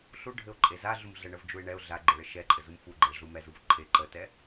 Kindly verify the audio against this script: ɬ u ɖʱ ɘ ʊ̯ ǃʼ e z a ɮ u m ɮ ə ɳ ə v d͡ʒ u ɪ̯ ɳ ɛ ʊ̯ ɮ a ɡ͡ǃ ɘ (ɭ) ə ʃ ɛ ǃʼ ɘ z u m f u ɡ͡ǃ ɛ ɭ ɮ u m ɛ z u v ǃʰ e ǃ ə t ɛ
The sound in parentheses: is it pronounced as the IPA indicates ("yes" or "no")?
yes